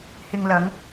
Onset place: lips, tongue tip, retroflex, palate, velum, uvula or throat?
throat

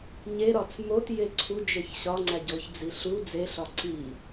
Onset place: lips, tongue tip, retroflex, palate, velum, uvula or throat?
palate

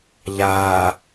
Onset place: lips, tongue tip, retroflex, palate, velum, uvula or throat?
palate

